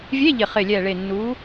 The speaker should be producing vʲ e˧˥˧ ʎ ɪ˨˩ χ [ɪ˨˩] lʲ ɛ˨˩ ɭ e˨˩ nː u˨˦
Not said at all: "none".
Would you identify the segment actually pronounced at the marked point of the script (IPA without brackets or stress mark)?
ɪ˨˩